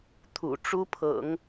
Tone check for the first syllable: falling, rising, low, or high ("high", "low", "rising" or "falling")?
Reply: low